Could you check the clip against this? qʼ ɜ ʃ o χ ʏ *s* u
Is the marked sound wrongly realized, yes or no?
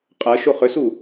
no